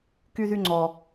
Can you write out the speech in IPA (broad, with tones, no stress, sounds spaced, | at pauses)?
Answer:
k y˦ ð y˦ ŋ͡ǀ ɔ˦